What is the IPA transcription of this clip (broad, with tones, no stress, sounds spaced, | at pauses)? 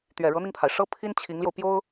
t̪ ɥ ɛ˨˩ ɻ ɤ˧˥ n̪ i˧ ŋ pʰ a˩ ɪ̯ ʂ ɤ˥ pʰ i˥ n t͡ɕʰ i˧˥ ŋ l j o˧ ʊ̯ p j o˥ ʊ̯